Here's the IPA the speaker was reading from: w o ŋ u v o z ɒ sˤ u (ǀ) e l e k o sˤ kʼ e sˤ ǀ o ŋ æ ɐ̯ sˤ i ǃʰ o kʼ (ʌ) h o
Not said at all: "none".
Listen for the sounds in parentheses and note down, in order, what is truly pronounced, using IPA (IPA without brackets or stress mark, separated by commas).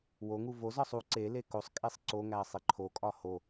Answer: ǀ, ɒ